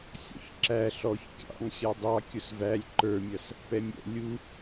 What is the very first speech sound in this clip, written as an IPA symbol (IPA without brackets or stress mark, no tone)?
sʲ